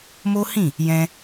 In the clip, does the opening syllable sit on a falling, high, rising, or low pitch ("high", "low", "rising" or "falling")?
high